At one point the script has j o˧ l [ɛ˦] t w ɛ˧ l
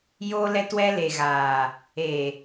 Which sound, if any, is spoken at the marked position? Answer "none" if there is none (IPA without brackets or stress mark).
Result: ɛ˧